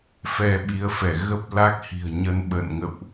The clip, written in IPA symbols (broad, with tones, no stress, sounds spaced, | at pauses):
f ɛ˧ ɓ i˨˦ ə̯ f ɛ˧˩ ɣ ə˦˥ p̚ l a˦˥ k̚ h i̤˨˩ ə̯ ɲ ə˧ n ɓ ə̰˧˨ n ŋ ə̰˧˨ w ʔ